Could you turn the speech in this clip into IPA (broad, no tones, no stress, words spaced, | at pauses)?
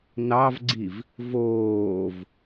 nɑvɡ͡ǀiv | voːv